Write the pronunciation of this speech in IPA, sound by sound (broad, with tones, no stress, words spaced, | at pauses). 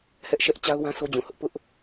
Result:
hɛ˦ʔʃɛ˦ʔ t͡ɕa˦ʊ̯wã˦ sʰo˦d͡ʑũ˨hʊ˦ʔ pʊ˦ʔ